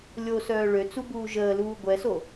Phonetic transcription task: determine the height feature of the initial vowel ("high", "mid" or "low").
mid